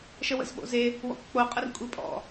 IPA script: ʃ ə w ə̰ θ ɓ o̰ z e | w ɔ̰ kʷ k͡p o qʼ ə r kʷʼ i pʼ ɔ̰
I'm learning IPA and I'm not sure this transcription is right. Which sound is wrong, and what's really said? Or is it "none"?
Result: θ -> z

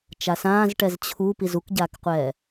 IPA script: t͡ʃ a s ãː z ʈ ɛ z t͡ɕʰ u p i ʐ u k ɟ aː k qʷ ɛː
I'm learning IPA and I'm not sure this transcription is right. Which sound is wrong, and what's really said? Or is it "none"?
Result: ʐ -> z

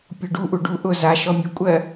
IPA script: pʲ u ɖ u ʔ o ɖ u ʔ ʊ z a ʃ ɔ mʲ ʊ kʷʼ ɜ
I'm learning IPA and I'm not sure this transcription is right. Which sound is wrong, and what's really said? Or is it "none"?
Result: o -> u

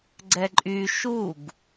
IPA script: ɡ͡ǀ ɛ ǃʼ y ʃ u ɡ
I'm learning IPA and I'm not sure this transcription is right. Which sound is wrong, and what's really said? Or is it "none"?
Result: none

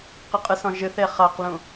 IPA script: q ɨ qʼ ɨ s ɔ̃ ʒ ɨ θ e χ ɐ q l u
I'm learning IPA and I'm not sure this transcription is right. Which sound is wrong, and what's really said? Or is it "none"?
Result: u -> ũ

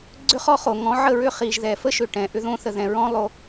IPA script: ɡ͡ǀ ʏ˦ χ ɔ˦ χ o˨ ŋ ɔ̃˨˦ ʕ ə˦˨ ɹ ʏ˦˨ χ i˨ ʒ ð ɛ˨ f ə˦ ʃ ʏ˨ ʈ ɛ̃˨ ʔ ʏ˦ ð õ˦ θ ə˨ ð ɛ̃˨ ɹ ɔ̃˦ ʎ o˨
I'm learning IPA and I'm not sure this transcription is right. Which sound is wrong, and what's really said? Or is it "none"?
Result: ʎ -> lˠ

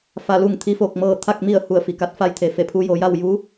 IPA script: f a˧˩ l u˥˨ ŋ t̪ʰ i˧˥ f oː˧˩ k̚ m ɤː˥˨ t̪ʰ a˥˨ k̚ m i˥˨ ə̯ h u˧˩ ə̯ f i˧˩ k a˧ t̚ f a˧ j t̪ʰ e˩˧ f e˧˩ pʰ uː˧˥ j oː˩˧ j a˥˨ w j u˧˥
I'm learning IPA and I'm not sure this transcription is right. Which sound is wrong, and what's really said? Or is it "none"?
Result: uː˧˥ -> u˧˥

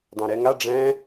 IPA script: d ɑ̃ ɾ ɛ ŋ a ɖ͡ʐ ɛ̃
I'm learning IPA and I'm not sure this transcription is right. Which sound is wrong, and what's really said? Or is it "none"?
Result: none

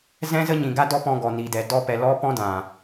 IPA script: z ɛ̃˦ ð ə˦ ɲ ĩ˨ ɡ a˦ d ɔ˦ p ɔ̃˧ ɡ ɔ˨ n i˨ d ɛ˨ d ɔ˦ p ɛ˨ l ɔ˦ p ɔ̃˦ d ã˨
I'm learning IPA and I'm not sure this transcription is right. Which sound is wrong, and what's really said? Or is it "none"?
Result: ð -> z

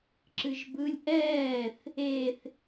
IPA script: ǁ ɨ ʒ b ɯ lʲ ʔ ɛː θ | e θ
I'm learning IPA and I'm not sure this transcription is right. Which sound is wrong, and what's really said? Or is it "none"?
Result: none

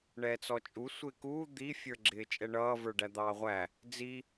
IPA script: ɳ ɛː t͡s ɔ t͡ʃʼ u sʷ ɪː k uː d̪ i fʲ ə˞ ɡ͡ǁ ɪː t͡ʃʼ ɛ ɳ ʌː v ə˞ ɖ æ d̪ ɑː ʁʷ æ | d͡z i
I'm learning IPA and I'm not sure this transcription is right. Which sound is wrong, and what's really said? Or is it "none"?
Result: none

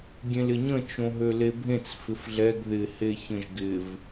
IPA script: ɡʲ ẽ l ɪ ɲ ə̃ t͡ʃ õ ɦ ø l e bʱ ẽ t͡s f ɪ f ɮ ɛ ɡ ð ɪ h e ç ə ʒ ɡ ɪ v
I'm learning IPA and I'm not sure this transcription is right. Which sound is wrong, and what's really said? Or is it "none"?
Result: ə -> ə̃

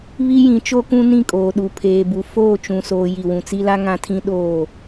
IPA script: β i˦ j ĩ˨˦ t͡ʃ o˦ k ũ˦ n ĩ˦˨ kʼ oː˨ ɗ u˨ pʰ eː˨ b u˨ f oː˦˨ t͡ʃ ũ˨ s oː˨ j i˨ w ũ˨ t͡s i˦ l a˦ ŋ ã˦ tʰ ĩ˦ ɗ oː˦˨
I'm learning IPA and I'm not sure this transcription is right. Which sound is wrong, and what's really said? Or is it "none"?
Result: none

